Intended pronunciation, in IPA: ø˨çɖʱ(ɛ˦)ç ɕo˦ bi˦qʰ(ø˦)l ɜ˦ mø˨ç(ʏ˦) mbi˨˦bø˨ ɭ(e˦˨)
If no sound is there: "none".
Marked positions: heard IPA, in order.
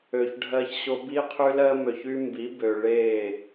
ɜ˦, y˦, y˦, e˦˨

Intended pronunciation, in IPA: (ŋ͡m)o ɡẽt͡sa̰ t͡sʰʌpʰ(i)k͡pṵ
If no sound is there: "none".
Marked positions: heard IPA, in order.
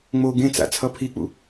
ŋ͡m, i

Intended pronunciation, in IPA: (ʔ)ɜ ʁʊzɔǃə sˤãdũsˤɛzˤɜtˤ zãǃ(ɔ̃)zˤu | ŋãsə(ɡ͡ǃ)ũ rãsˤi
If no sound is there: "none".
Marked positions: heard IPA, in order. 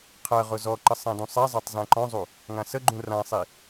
qʰ, ɔ̃, ɡ͡ǃ

